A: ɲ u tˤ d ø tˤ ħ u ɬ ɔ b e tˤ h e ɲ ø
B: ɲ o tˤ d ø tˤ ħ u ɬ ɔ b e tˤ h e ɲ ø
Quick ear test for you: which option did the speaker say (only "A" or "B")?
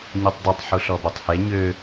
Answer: A